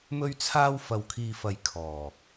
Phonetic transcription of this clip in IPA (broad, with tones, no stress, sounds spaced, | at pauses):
m ɵ˧ ɥ t͡sʰ aː˧ w f ɐ˨ w kʰ iː˨ f ɐ˨ j kʰ ɔː˨˩